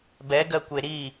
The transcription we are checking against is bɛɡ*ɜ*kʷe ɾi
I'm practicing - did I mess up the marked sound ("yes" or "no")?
no